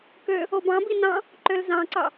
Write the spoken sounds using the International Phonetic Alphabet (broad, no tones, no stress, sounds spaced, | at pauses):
k ø | o b ɑ̃ b i n ɑ̃ | ǃ ø l z ɑ̃ ǀ ɑ